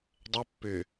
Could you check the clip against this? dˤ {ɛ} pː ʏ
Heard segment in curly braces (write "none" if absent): ɛ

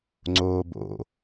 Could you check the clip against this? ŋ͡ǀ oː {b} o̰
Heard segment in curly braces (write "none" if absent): b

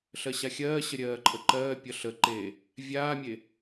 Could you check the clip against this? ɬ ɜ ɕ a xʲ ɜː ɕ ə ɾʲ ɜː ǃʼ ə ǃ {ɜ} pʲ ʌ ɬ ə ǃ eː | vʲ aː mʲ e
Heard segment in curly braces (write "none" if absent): ɜː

